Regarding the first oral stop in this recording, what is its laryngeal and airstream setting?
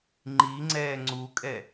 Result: click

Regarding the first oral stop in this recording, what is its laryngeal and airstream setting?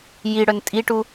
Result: ejective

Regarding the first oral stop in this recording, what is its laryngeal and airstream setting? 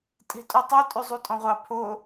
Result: ejective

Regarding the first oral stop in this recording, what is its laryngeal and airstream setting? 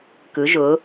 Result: plain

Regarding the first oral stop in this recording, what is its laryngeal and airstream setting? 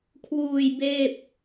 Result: aspirated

